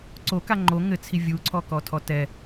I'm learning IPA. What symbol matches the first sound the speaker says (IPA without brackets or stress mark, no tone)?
ǀ